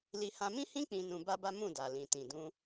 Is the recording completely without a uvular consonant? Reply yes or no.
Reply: yes